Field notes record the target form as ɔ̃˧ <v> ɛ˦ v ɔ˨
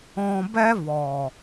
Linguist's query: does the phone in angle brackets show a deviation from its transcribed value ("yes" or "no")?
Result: yes